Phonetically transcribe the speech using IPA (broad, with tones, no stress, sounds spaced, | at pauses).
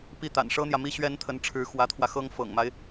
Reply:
p i˥˩ t̪ a̰˨˩ n ʂ ɤ˥ n̪ j ä˨ m i˥ ɕ ɥ ɛ˥ n t̪ʰ ə˧˥ n ʈ͡ʂʰ ɻ̩˧˥ x w ä˧˥ t̪ʰ w ä˧ x ɤ˥ ŋ f ɤ̰˨˩ ŋ m a˦ ɪ̯